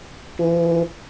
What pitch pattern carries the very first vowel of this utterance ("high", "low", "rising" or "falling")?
high